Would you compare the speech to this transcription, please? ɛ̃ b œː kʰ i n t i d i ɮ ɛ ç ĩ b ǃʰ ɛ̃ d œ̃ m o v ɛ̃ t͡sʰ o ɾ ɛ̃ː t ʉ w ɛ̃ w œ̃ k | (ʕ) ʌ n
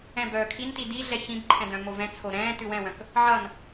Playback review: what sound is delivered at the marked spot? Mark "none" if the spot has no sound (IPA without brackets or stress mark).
ʕ